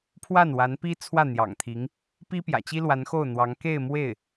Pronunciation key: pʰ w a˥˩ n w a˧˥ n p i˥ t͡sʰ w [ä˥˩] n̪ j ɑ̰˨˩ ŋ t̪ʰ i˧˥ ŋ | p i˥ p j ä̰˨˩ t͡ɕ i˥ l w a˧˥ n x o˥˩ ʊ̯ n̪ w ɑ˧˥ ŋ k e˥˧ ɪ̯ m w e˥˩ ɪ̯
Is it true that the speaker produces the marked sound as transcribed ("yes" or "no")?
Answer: yes